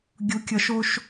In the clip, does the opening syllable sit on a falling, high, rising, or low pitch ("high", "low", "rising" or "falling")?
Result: rising